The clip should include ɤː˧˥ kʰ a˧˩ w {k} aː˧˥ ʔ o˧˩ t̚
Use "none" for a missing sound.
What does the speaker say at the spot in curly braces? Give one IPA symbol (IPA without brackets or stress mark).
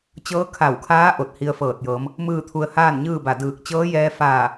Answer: kʰ